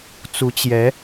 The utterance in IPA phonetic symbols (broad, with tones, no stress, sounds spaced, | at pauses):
t͡s u˧˥ t͡ɕ j ɛ˧˥